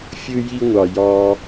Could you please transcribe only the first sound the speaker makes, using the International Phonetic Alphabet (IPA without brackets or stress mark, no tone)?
fʲ